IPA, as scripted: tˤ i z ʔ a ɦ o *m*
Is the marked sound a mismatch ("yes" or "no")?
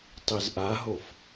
yes